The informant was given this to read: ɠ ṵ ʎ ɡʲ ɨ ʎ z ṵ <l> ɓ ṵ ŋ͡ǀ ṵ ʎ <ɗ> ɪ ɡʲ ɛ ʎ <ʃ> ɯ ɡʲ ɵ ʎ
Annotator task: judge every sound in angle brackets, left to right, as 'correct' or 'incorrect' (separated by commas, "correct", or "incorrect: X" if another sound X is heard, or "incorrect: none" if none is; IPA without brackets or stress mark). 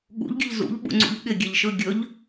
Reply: incorrect: ʎ, incorrect: ɠ, correct